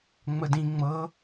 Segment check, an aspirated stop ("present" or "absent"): absent